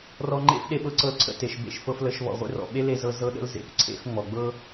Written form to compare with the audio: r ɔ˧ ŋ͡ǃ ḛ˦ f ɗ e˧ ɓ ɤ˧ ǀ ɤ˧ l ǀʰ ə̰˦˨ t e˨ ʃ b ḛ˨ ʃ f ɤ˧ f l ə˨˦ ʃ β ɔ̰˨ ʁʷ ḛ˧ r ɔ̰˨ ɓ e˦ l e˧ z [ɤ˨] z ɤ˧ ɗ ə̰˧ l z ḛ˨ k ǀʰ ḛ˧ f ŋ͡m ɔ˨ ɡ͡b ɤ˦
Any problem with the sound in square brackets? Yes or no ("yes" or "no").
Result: yes